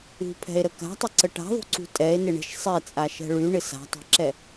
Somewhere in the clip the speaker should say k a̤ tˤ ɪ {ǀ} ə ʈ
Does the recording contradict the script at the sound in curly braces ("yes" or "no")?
no